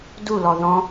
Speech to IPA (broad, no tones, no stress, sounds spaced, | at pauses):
d u l ɔ ð ɔ̃